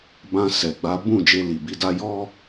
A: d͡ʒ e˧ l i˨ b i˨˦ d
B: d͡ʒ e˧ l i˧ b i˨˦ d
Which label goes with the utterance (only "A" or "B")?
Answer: A